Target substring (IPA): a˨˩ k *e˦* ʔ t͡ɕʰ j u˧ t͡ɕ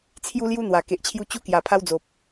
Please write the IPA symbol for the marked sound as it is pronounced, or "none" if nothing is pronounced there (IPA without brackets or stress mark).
e˨